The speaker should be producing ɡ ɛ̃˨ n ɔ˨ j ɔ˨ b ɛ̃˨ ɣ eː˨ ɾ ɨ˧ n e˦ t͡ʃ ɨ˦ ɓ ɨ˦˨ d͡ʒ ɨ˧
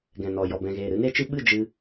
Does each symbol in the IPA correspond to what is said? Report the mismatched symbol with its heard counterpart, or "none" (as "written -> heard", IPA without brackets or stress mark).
none